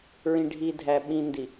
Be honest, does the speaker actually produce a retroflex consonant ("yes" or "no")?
yes